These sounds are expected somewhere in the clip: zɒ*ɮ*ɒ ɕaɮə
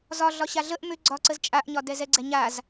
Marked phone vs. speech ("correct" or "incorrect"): correct